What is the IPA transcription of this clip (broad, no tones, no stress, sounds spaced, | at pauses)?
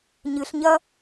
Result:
ɲ ɨ ɬ ɲ ɐ